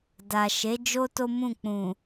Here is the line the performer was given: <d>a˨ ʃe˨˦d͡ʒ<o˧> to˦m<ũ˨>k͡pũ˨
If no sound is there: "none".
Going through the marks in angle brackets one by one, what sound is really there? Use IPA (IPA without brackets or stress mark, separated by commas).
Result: d, o˦, ũ˦˨